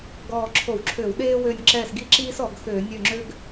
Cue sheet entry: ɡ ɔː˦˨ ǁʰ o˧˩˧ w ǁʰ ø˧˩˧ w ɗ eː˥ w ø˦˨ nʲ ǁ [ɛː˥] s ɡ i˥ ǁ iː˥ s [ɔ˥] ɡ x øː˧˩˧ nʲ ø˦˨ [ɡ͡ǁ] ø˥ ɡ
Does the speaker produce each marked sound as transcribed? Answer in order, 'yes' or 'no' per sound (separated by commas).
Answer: no, no, no